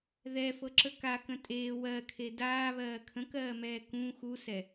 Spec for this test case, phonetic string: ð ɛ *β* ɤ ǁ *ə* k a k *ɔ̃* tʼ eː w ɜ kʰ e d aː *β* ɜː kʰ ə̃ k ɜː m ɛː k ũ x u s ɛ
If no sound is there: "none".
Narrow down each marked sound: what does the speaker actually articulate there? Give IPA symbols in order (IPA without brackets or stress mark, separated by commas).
f, ə, ə̃, β